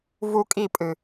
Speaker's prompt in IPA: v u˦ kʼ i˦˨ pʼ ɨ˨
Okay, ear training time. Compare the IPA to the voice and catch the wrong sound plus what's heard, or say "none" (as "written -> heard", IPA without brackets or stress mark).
none